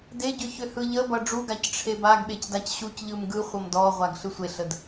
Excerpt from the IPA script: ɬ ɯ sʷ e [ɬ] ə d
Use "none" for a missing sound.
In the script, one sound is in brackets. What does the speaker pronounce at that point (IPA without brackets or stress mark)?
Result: ɬ